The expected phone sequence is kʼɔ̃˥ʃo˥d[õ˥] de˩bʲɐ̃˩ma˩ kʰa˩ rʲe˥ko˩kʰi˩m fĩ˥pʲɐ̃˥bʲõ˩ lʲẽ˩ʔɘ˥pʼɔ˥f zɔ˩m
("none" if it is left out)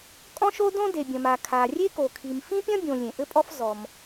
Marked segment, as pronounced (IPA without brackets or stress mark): õ˥